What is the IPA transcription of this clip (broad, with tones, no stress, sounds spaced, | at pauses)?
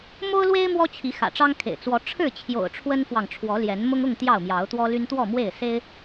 m o˦ ʊ̯ l w e˦ ɪ̯ m w ɔ˦ t͡ɕʰ i˨˦ x ä̰˨˩ ʈ͡ʂ ɑ˦ ŋ kʰ ḛ˨˩ ɪ̯ t͡s w ɔ˨˦ ʈ͡ʂʰ ɻ̩˥˨ t͡ɕʰ j o̰˨˩ ʊ̯ ʈ͡ʂʰ w ə˦ n f w ɑ˨ ŋ ʈ͡ʂʰ w ɔ˨˦ l j ɛ˨˦ n m ʊ˦ ŋ ʊ˥˨ ŋ t̪ j ɑ˥˨ ʊ̯ m j ɑ˨˦ ʊ̯ t̪ w ɔ˦ l y˦ n t̪ w ɔ˥˨ m w e˥˨ ɪ̯ s e˦ ɪ̯